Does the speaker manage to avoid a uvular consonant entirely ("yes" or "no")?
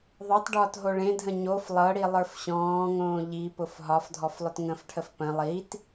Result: yes